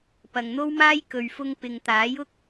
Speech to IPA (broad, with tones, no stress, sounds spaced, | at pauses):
p ɐ˨ ŋ n̪ o˥ w m aː˥ j k ɵ˨ ɥ f ʊ˧ ŋ p ɪ˨ ŋ t̪ aː˨˥ j ʊ˥ k̚